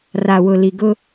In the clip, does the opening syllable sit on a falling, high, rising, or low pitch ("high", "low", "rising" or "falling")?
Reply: low